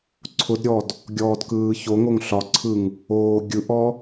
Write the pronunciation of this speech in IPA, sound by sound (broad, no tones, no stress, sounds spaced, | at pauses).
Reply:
ǀʰ ʊ d ɾʲ ɔ d | ɡʲ ɔː d k ɯː ç o ŋ o ŋ ɬ ɒ ǀʰ ɯ ŋ | oː ɡʲ ɯ ʔ ɔ